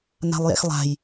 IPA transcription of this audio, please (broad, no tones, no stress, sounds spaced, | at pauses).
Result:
n a̤ lˠ j ɛ̰ x lˠ a̤ j